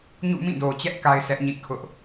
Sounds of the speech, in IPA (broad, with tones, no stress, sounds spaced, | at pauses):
ɲ ṵ˦˨ m ĩ˦˨ d o˨ t͡ɕ ɛ˦ ʔ k a˦ ɪ̯ sʰ ɛ˦ ʔ ɲ ḭ˦˨ kʰ ʊ˦ ʔ